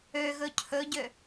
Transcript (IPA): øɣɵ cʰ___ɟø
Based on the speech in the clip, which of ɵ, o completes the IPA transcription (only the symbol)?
ɵ